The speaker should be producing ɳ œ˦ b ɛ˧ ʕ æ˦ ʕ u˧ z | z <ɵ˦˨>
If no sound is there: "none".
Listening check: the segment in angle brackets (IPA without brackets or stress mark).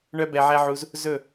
ɵ˦˨